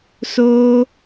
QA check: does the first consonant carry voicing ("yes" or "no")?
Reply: no